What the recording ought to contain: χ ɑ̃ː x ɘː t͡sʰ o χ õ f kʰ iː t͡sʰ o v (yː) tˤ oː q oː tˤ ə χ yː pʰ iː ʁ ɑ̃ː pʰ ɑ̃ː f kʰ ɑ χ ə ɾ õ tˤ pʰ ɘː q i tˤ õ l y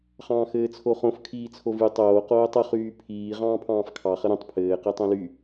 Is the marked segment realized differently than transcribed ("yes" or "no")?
yes